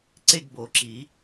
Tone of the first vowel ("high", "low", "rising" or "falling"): falling